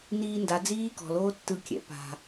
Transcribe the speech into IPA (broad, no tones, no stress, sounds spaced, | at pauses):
n iː n d a d͡z iː k ɔ̤ l oː tː ɯ kʲ ɛ̰ p a̤